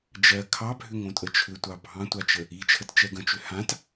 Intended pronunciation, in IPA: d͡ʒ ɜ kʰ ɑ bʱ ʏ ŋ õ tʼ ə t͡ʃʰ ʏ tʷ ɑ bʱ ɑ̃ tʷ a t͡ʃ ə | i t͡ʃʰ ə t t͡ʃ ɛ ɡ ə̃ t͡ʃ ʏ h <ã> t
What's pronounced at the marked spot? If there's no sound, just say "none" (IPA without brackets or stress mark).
ã